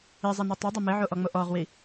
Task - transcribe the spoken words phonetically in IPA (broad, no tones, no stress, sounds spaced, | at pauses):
i zˤ e n ɔ tˤ o dˤ ɪ m ɪ ʕ o ʔ ɔ ŋ͡m o ʔ ɔ ʁ w i